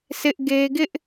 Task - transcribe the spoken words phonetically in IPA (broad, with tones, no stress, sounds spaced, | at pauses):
sʰ ɪ˦ ʔ ɡ e˦ ɡ ɪ˦ ʔ